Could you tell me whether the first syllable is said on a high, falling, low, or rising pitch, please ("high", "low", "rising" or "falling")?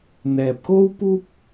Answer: low